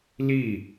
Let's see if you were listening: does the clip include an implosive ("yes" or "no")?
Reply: no